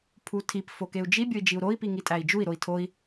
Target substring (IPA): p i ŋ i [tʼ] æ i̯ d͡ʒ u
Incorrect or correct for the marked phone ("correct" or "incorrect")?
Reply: correct